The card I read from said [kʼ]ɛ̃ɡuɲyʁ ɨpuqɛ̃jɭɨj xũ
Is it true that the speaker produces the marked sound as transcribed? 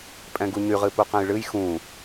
no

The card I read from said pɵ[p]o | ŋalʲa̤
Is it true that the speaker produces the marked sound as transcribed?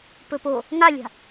yes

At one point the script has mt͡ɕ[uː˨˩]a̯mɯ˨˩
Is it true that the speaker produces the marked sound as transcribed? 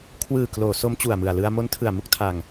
no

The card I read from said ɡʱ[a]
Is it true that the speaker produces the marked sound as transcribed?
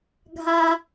yes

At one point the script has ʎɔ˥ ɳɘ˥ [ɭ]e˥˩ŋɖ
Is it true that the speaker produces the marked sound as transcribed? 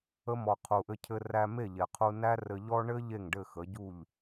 no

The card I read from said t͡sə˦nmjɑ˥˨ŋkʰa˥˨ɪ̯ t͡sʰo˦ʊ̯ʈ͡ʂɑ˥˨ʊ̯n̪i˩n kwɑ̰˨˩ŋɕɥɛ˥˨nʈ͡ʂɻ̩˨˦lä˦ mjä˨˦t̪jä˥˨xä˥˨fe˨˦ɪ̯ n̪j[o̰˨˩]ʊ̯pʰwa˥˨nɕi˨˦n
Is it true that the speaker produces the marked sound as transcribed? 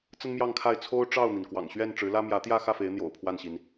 yes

